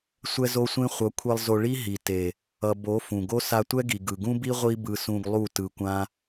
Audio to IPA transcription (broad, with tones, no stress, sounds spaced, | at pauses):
sʷ ɛ˦ z o˦ sʷ ẽ˦ χʷ ʌ˨˦ kʷʰ e˧ lˠ z o˧ ɭ i˦ ɦ i˨ t e˨ | ʌ˨ b o˨˦ f ũ˨ ɡ o˦ s a˧ tʷ ɛ˦ ɡ i˨ ɡ ɯ˨ ɡ ũ˦ b i˦ ʁʷ i˦ b ɯ˧ s ũ˧ ɡ lˠ u˦˨ t ɯ˧ kʷ ã˦